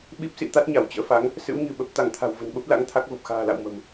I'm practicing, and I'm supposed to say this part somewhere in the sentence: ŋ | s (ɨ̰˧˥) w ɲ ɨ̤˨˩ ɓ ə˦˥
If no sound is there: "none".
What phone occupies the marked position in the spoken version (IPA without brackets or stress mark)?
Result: ɨ̰˧˥